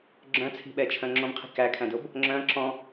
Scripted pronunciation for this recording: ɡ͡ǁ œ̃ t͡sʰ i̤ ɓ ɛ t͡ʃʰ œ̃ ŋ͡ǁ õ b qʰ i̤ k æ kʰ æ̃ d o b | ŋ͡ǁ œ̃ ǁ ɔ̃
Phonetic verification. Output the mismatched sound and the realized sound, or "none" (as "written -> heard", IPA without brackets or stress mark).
none